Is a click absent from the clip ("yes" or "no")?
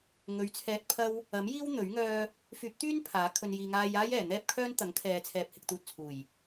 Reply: yes